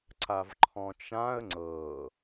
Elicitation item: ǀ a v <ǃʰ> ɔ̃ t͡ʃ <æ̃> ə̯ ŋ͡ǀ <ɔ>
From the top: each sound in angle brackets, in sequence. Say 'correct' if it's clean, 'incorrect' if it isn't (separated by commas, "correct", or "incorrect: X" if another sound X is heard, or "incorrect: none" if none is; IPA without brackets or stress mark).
correct, incorrect: ã, incorrect: ɤ